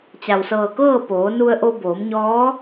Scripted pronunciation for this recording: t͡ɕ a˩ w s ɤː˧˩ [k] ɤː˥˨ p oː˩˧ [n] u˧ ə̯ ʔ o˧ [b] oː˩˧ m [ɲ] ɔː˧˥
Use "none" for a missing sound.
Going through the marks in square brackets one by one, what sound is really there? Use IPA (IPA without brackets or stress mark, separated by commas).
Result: k, n, b, ɲ